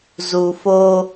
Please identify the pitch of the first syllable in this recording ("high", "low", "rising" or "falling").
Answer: low